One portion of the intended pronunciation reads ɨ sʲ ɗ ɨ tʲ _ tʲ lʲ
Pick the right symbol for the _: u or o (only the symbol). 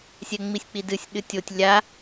o